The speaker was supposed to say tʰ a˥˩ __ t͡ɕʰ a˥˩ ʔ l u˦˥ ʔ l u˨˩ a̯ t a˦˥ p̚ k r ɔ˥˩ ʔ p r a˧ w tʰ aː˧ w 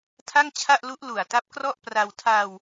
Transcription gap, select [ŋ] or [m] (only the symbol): ŋ